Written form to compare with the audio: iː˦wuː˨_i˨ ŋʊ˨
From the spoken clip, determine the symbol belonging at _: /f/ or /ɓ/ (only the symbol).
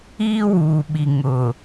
ɓ